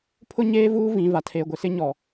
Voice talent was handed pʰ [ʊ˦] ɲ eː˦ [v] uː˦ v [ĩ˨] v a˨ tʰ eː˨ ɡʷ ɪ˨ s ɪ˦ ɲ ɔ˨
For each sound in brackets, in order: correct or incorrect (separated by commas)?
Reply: correct, correct, correct